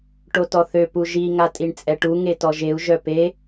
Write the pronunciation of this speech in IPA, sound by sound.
ʈ o t ɔ θ ø p u ʒ i ŋ a tʼ i ɳ t͡sʼ ɛ ʈ u ŋ e t ɔ ʒ e u̯ ʒ œ p e

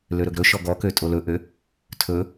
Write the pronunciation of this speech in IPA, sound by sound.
l ø ɾ ɵ ɡ ɾ ɵ ʃ ɔ ɡ ɔ k ø tʼ o l ɵ ʔ ø | tʰ ɵ

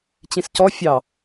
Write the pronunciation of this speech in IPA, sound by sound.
t͡ɕ ĩ s c ɔ fʲ ɑ

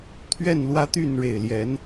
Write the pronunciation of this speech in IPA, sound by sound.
t̪ʰ ɥ ɛ˥˨ n l w ä˦ t̪ y˥˨ n ɻ e˨˩ ɪ̯ l j ɛ˨˦ n

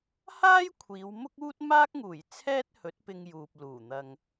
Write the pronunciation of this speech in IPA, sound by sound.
h aː˥ j kʷʰ iː˨˧ w m ʊ˥ k̚ uː˥ t̚ m aː˥ k̚ ŋ uː˨˩ j t͡sʰ ɛː˥ t̚ h ɵ˨˥ t̚ p ɪ˧ ŋ j uː˨ p̚ l uː˨˩ n̪ ɐ˨ ŋ

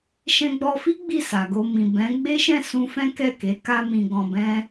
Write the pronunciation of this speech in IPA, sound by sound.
ʃ ɛ̃˧ ɡ͡b ɔ˧ f i˦ ɡ͡b i˦˨ s a˨ ɡ o˧ m ĩ˨ b ɛ̃˨˦ ɡ͡b e˦ ʃ ɛ̃˦˨ s ũ˧ f ɛ̃˦ k ɛ˦˨ k e˨˦ k a˦ m ĩ˧ ɡ ɔ̃˧ b ɛ̃˦

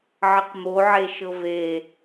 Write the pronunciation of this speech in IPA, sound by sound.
ʕ ɘ q m o ʕ e ʃ ɤ v e

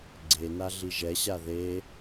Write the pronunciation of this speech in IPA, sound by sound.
ɡ͡ǀ e n a ɮ i ʒ ɛ ɕ a ð e

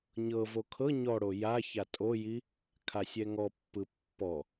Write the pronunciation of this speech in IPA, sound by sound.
ɲ ɤ v o kʰ ɤ ɲ ɔ ɽ o j a ç a tʼ o j i | kʰ a sʲ ɛ ŋ ɔ pː ɯ pː ɔ

